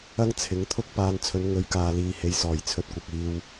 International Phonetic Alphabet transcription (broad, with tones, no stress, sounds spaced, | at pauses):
ɐ˥ ŋ t͡sʰ ɪ˨˥ ŋ t̪ʰ ʊ˥ k̚ p aː˧ n t͡sʰ ɵ˨˧ n ŋ ɵ˨˧ ɥ k aː˨ l iː˨ h e˨ j s ɔː˨˩ j t͡sʰ ɵ˧ t̚ kʷ ɐ˨ k̚ iː˧ w